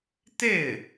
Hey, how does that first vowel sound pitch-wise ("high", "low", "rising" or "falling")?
falling